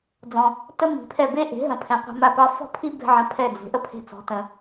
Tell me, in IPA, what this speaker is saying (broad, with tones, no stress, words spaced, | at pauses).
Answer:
d͡zɔ̃˩ | tə˥ mi̤˩pʰɛ˥˩ be˥ʔe̤˩˥ ɦə̃˩pʰɛ̃˩ qʷɛ̤˧ma˥˩pɑ˥ fɔ̤˥pʰi˥ bɛ̤˥ʕə̃˧pʰɛ˥˩ d͡ze̤˩˥ʔə˥pʰe̤˧t͡sɔ̤˩˥ tə̃˩